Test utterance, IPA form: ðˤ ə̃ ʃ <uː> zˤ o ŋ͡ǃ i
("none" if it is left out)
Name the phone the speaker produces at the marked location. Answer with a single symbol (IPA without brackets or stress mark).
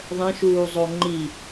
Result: uː